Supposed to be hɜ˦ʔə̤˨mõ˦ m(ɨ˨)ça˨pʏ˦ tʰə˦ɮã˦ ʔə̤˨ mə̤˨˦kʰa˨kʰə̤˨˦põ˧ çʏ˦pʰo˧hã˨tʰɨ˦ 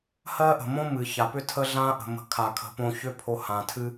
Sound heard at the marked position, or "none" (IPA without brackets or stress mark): ɨ˨